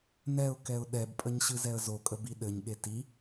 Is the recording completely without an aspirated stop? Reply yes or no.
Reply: yes